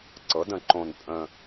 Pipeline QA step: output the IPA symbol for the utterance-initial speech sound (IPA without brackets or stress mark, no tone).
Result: ǀ